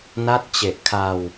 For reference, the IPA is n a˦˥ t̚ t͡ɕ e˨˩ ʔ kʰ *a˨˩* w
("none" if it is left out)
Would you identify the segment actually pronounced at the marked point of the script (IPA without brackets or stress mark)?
a˧